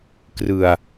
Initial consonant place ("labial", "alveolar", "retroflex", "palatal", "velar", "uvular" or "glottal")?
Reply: velar